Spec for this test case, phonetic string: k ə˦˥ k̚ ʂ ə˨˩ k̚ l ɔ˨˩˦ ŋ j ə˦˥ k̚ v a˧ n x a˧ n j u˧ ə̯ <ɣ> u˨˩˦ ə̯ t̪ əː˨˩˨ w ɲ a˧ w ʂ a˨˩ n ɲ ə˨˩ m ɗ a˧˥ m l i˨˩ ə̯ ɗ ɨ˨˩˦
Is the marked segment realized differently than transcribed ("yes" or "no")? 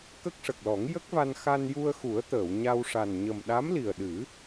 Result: yes